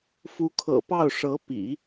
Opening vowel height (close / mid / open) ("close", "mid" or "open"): close